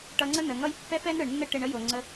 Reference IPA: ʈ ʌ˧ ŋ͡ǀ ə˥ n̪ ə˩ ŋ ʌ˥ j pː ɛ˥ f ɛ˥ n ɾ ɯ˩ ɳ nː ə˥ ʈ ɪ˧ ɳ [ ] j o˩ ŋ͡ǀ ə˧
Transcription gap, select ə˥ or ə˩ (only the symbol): ə˥